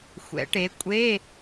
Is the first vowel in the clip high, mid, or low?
mid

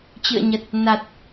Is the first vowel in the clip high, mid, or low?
high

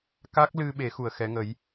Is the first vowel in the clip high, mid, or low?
low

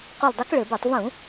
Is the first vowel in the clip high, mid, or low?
high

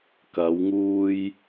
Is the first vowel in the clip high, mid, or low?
low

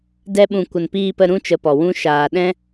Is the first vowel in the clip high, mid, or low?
mid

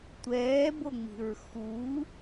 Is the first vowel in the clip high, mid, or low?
mid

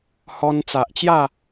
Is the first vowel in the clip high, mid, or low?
mid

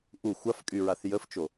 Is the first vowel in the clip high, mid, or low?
high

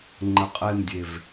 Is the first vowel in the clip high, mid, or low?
mid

